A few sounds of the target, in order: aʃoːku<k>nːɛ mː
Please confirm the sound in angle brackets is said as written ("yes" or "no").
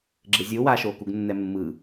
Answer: no